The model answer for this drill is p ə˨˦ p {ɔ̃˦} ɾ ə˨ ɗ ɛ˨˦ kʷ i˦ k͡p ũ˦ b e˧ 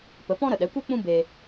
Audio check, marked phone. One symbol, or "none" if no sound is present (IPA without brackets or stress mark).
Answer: ɔ̃˦